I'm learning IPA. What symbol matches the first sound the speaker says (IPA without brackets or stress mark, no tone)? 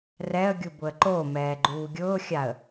r